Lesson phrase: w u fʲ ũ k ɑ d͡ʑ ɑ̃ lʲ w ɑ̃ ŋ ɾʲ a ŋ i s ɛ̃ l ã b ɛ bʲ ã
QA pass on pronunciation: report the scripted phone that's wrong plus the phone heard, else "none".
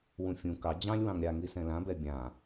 u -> ũ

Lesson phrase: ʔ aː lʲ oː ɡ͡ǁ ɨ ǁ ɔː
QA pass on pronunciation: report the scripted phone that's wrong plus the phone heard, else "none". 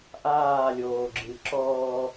none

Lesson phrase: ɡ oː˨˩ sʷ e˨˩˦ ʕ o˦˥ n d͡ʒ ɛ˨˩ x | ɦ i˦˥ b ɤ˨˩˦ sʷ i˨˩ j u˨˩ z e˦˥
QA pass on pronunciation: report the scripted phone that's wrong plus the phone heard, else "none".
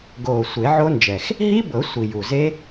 none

